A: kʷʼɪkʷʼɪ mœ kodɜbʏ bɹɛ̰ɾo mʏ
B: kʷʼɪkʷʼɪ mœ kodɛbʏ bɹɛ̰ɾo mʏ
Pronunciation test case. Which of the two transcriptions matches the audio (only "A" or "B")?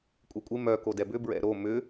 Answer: B